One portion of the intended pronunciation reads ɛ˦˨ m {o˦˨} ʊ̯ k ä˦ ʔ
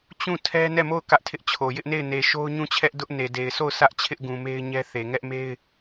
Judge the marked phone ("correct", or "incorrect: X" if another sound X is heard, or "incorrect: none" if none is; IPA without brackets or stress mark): correct